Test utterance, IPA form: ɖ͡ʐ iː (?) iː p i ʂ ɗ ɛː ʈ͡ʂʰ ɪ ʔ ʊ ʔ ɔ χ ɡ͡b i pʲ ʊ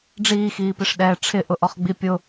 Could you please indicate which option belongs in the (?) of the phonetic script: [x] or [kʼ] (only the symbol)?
x